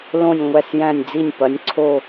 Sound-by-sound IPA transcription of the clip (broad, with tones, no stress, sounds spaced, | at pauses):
l õ˦˨ nʲ ŋʷ æ˦˨ s j æ̃˦˨ nʲ d͡z i˦˨ nʲ p ɐ˩˥ nʲ ǀʰ o˦˨